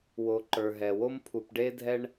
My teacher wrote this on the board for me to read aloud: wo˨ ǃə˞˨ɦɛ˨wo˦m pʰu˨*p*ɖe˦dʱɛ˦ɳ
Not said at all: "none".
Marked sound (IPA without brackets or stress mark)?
p